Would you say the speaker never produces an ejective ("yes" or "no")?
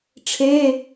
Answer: yes